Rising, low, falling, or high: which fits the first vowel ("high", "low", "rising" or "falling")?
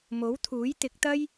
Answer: rising